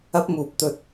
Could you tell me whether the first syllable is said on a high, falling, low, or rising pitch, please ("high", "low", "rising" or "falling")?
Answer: high